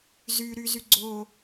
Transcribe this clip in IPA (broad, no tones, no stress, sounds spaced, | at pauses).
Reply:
z y ɾ y z y ɡ͡ǀ o